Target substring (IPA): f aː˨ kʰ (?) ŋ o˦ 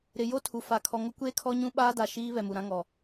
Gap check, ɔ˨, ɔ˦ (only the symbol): ɔ˨